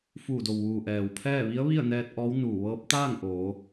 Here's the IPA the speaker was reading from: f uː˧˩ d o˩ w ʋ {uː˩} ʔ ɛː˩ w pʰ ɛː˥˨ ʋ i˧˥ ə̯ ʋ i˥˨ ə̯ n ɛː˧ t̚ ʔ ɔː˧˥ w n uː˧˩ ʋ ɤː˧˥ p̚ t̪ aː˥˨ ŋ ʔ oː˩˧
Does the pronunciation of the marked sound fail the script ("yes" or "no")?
no